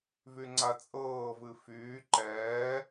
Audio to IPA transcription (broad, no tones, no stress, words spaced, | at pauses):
vyŋ͡ǀat͡sʼɤː vɨfyː ǃɛː